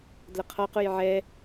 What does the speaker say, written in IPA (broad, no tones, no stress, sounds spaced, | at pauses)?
d l ə qʰ ɔ q u j ʕ ɛ